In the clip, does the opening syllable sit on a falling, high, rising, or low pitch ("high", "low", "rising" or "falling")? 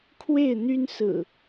falling